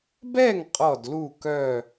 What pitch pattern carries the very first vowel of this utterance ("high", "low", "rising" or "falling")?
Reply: falling